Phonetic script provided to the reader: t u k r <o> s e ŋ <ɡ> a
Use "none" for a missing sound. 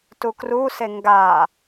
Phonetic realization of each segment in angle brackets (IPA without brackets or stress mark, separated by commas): u, ɡ